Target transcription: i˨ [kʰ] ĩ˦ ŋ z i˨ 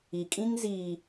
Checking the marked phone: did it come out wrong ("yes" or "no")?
yes